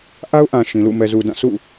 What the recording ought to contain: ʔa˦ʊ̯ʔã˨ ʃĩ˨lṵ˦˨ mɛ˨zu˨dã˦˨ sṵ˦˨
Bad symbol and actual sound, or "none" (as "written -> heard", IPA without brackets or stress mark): none